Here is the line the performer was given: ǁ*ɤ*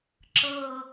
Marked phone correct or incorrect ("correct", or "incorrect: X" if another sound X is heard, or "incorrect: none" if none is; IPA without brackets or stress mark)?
correct